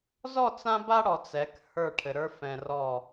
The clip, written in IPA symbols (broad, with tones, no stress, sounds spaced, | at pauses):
z ɔ˦˨ t͡s ã˦ b a˦ ɽ ɔ˨ t͡s ɛ˨˦ k h ə˞˦˨ ʈʰ ɘ˨ ɾ ə˞˦ f ɛ̃˨ r ɔ˦˨